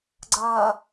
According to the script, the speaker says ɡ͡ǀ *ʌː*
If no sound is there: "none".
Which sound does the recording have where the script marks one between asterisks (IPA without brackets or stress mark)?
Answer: ʌː